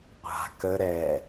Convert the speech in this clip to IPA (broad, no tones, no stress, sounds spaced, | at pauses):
qʷ a̤ k ə ɾ ɛ